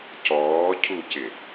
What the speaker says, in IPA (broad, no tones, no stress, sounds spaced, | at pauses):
c ɔː cʰ u c ɪ